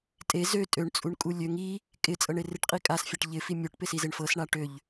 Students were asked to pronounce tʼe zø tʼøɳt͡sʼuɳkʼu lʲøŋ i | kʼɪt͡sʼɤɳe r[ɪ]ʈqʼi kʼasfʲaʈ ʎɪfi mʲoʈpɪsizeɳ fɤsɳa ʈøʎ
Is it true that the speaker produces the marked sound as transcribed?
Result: yes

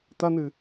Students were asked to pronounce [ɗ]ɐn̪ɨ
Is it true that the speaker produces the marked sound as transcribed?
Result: no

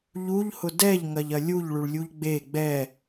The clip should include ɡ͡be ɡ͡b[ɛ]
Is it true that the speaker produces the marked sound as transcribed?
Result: yes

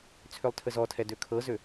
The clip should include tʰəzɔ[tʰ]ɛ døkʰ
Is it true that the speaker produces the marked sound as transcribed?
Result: yes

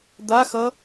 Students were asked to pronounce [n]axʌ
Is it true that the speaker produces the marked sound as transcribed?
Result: no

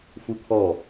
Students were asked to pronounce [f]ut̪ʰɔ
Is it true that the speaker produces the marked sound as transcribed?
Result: yes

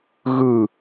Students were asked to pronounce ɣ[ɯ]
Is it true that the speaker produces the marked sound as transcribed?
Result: yes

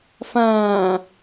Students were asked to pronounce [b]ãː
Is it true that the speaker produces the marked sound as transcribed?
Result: no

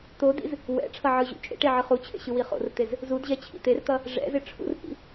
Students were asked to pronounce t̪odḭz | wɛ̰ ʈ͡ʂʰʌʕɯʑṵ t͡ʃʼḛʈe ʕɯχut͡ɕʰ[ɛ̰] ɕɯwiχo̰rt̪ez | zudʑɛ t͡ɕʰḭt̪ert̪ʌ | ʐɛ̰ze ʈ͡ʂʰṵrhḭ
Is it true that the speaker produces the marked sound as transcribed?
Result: no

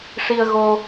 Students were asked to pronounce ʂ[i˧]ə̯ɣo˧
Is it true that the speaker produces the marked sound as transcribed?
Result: yes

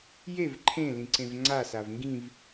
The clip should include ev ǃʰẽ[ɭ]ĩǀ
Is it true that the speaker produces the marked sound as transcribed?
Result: no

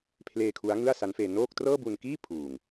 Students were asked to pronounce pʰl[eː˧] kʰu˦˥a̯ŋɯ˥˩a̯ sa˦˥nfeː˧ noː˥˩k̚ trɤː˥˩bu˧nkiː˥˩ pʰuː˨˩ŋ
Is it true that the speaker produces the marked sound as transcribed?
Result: yes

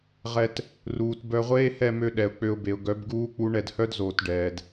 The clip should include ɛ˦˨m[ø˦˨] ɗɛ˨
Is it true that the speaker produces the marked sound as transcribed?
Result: no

